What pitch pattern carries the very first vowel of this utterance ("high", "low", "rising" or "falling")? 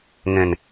low